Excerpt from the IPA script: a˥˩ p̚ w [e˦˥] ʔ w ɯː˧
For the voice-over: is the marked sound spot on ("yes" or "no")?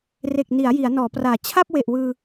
no